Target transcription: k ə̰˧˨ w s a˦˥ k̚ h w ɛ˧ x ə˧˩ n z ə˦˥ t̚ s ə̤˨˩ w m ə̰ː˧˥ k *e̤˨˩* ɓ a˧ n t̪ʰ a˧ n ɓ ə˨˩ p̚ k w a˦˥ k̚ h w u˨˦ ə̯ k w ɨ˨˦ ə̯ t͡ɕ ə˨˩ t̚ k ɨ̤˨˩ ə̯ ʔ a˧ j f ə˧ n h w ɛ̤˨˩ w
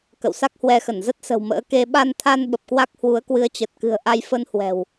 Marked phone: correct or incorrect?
incorrect